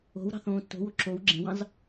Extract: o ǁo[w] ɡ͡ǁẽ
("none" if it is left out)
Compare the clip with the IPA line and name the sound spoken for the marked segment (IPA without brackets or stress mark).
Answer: w